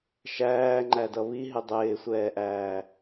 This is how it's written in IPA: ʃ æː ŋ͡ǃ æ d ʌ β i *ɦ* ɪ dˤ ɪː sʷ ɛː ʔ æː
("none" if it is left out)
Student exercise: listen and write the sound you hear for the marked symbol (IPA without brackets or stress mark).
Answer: ɦ